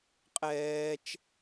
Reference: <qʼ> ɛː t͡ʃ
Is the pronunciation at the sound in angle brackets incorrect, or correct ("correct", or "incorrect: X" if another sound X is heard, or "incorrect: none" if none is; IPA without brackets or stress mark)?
correct